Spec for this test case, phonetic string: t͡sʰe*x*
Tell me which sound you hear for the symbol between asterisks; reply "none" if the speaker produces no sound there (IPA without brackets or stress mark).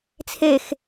x